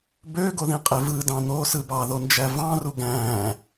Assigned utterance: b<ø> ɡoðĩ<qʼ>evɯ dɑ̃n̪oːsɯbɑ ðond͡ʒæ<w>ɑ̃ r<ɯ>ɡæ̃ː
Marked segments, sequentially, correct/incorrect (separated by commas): correct, correct, incorrect, incorrect